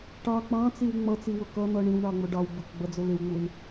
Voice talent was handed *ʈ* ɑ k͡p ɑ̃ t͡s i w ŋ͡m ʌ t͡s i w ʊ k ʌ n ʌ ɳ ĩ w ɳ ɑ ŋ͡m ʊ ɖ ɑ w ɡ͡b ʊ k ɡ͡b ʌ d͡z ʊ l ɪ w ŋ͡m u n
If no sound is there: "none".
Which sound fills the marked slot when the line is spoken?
ʈ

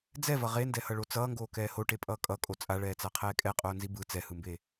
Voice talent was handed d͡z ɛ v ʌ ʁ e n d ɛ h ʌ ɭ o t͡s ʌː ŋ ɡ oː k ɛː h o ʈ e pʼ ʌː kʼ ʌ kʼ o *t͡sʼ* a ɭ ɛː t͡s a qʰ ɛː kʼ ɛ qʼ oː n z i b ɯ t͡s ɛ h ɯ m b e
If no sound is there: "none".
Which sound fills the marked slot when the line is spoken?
t͡sʼ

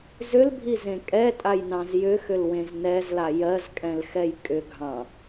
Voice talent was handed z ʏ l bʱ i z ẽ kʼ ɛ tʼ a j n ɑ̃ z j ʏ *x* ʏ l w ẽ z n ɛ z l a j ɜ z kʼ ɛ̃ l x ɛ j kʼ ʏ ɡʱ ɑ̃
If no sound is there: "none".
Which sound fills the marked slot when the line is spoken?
x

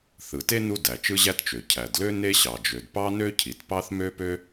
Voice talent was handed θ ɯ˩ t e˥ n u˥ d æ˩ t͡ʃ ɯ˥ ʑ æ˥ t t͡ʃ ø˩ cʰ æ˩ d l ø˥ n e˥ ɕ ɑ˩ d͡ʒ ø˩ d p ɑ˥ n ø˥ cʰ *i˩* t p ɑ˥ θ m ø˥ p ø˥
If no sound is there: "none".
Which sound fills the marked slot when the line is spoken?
i˩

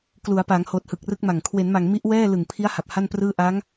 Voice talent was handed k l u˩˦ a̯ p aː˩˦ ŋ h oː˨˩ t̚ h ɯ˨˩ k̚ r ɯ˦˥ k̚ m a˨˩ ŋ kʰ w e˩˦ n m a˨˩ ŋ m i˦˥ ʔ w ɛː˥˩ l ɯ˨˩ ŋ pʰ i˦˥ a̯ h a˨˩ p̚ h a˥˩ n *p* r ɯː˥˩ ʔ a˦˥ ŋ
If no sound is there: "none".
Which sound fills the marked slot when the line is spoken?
p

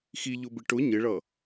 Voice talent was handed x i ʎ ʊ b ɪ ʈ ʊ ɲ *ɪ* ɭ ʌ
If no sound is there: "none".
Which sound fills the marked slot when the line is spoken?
ɪ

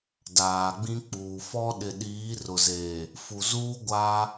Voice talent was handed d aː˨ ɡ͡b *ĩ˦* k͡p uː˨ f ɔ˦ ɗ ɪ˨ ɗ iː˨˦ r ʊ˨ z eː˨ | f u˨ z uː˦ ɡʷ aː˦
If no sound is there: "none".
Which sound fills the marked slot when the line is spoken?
ĩ˦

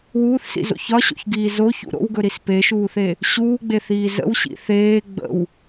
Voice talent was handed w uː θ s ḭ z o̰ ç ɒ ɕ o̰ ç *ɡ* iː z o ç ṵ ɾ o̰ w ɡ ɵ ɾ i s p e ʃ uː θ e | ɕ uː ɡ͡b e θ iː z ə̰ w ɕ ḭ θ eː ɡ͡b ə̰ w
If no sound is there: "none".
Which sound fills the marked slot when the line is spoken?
ɡ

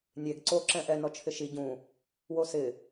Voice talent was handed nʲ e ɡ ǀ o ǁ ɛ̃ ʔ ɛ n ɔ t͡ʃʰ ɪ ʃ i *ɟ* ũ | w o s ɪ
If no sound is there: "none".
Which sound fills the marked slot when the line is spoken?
ɟ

